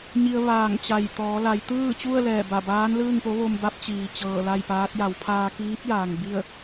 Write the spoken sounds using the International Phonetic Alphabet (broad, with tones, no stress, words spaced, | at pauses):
ɲi˧ə̯ ʋaː˧˩ŋt͡ɕa˧˩j t̪ɔː˩˧la˩˧j t̪ɯː˥˨t͡ɕu˥˨ə̯lɛː˧˩ ba˧˩baː˧˥n lɯː˥˨ŋpo˧˥ ʋo˧mba˧˥p̚t͡ɕiː˩ t͡ɕɤː˧˩la˥˨jpaː˧˥t̚ ja˩˧wpʰaː˧ kiː˧˥p̚jaː˩ŋ bi˥˨ə̯